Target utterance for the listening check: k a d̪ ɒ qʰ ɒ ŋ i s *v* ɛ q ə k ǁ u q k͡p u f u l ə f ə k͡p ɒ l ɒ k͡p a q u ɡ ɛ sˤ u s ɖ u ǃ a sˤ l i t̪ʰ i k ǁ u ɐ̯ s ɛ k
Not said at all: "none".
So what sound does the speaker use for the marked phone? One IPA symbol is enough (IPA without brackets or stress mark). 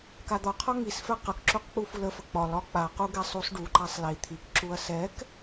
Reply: f